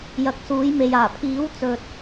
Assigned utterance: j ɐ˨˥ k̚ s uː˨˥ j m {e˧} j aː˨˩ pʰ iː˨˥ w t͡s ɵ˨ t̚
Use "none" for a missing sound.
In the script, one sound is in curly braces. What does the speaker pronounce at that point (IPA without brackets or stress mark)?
e˧